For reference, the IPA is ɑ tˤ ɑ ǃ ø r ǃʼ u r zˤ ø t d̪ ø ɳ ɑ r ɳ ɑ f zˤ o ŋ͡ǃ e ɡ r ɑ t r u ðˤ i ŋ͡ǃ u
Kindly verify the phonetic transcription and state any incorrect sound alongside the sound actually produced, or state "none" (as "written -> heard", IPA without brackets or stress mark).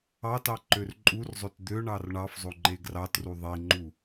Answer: tˤ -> t